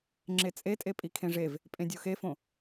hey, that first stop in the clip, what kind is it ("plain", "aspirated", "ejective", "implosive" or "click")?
click